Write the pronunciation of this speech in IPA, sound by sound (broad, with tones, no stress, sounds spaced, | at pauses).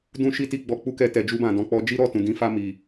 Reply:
d ũ˦ ʃ i˦ t i˧ ɡ͡b ɔ˧ k͡p u˦ k ɛ˧ t ɛ˨ d͡ʒ u˧ b ã˨ d ɔ̃˧ k͡p ɔ˦ d͡ʒ i˦ ɾ ɔ˦˨ t ũ˨ d ĩ˨˦ f a˧ m i˨